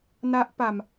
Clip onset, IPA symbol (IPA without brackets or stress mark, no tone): n